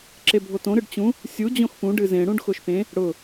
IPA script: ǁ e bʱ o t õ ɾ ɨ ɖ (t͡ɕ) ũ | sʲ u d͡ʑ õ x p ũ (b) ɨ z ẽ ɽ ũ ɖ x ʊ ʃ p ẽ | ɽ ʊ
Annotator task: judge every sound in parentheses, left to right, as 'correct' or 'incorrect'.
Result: correct, incorrect: ɖ

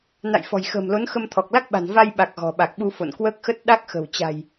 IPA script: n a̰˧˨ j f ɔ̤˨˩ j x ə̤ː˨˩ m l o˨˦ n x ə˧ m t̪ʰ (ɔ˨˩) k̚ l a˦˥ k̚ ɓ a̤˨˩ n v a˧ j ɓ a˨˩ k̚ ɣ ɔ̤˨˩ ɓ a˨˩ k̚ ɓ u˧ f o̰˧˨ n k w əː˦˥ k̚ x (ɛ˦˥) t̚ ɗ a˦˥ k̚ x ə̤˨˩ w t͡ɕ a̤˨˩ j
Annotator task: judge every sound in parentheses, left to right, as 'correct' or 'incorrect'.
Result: correct, incorrect: ə˦˥

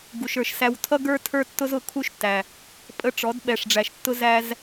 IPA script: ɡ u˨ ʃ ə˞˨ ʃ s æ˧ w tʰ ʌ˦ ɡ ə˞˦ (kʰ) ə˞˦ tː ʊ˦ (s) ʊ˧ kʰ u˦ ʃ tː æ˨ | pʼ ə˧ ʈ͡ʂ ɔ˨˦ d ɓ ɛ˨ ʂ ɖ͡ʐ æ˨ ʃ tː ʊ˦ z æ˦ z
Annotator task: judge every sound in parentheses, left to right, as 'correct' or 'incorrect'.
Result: incorrect: tʰ, incorrect: z

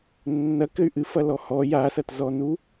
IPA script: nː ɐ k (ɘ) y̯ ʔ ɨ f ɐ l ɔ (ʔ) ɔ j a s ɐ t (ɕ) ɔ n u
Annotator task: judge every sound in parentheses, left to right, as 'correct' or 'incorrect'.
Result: correct, incorrect: h, incorrect: z

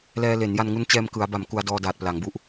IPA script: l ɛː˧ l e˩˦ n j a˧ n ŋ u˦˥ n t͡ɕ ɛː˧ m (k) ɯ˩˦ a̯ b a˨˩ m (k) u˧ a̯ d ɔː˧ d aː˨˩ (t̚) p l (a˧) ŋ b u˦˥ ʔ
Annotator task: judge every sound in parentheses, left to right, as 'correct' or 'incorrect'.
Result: correct, correct, correct, incorrect: a˩˦

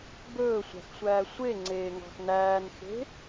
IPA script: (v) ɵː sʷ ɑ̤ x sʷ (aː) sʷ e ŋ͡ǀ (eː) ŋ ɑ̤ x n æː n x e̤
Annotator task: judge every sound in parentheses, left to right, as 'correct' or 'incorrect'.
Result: incorrect: b, incorrect: æː, correct

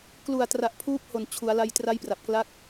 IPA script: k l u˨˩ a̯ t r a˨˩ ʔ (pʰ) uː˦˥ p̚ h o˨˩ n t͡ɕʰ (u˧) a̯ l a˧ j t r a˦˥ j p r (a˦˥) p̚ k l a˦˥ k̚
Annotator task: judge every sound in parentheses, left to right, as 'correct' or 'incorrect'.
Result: correct, incorrect: u˩˦, incorrect: a˨˩

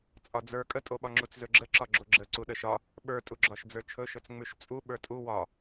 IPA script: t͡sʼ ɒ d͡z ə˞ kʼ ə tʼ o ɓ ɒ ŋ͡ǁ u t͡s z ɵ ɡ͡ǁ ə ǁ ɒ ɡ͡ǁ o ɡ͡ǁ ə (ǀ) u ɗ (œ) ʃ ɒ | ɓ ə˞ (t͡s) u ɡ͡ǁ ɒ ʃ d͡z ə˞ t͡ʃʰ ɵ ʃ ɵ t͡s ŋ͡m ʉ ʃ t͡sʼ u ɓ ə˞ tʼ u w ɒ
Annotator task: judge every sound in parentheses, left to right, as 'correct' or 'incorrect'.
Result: correct, incorrect: ə, incorrect: tʼ

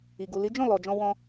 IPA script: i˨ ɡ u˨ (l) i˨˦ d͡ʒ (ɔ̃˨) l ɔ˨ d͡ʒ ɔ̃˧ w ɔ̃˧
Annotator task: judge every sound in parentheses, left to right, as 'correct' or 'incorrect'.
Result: correct, incorrect: ɔ̃˦˨

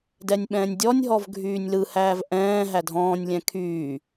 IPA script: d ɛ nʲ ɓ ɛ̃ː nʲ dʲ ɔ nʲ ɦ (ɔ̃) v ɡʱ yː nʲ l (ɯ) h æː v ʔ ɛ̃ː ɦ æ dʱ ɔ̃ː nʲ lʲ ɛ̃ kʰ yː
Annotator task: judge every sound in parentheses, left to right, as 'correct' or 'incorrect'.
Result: incorrect: ɔ, correct

